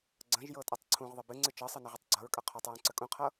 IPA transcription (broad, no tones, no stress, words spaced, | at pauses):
ɡ͡ǀə̃ʒjɤtʼʌtˤ ǀʰũʁðˤə bɨŋ͡ǀɨ t͡ʃɤsˤɨnəʁətˤ ɡ͡ǀʌɹkʼʌ qʰotˤɹũǀə kʼũqʰɤ